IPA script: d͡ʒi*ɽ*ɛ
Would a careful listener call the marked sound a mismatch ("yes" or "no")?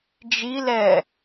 yes